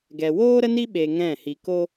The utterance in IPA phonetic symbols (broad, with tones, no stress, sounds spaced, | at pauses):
ɡ ɛ˨ w oː˦ ɾ ə˦ n i˦ ɓ e˧ ŋ ɛ̃˦˨ h i˧ k o˦